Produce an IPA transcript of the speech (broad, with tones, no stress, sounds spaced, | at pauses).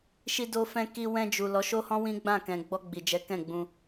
ʃ i˧ d o˧ f ɛ̃˧ k i˧ w ɛ̃˧ d͡ʒ u˨ l ɔ˨˦ ʃ o˦ h ɔ̃˦ w ĩ˦ ɡ͡b ã˦˨ k ɛ̃˨ ɡ͡b ɔ˧ ɡ͡b i˨ d͡ʒ ɛ˨˦ k ɛ̃˦˨ ɡ͡b ũ˧